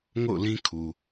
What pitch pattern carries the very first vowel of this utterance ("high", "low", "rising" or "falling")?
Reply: falling